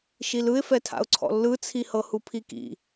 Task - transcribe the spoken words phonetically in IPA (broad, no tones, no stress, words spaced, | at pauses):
ʃilɯɪ̯fɛtʰa̰ʊ̯ ǀʰɔ̰lːɯt͡sʰi hɤhupʰikḭ